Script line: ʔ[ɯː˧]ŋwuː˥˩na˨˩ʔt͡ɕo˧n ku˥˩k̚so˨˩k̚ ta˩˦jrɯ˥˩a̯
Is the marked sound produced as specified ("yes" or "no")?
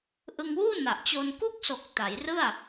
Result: no